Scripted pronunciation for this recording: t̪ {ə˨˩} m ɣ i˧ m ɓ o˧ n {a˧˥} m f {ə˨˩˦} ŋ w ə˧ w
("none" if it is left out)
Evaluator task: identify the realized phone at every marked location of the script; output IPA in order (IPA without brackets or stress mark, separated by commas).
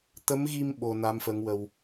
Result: ə˧˥, a˧˥, ə˧˥